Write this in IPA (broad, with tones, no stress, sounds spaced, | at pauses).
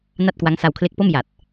n a˥˩ t̚ k w a˦˥ ŋ s a˧ w kʰ l e˦˥ k̚ p o˥˩ m j a˨˩ t̚